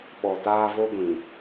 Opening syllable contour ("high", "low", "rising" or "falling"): low